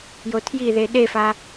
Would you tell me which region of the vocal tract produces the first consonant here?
palate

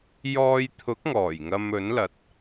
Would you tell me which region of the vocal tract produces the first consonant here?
palate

